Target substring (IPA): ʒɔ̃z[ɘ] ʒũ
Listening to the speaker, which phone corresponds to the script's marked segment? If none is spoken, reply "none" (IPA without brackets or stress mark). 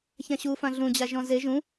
e